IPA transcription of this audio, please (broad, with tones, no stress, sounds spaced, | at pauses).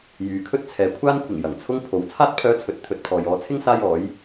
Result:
j yː˨ kʰ ɵ˥ t̚ t͡sʰ ɛː˨ kʷʰ aː˥ n kʷʰ ɪ˨˩ ŋ j ɐ˨˩ ŋ t͡sʰ ʊ˥ ŋ pʰ o˨ w t͡sʰ aː˥ t̚ pʰ œː˧ t͡sʰ ɵ˨ t̚ t̪ʰ ɵ˧ t̚ pʰ ɔː˨ j ɔː˨˧ t͡sʰ ɪ˥ ŋ s aː˥ j ɔː˨˥ j